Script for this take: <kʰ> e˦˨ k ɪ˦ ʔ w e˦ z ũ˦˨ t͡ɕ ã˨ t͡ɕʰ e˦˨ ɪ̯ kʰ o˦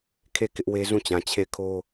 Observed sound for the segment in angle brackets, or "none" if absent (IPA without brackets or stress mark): kʰ